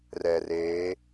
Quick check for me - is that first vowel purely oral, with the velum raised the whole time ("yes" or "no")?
yes